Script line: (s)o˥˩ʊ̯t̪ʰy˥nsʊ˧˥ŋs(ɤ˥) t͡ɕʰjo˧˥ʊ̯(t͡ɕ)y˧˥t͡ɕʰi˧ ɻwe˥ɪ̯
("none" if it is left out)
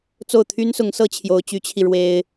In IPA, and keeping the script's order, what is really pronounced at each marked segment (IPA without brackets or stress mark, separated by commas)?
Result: t͡s, ɤ˥, t͡ɕ